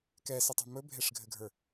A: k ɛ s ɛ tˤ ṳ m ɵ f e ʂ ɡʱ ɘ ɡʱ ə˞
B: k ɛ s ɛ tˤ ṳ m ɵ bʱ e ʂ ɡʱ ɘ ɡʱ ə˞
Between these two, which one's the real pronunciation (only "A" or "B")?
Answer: B